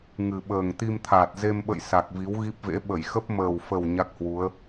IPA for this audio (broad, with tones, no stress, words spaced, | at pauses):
ŋɨ˨˩ɓəː˨˩ŋ t̪i˧mt̪ʰaː˨˩t̚ ze˧mɓə̰˧˨j sa˨˩k̚vi˨˦wɣi˦˥p̚vḛ˧˥ ɓə˧˩jxə˦˥p̚ məː˨˩wfə˨˩w ɲa˦˥k̚hwu˨˦ə̯